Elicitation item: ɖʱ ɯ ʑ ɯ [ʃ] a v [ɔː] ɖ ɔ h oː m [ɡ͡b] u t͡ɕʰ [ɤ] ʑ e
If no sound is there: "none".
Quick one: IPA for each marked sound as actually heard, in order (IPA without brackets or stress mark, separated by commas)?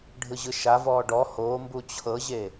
ʃ, ɔː, b, ɤ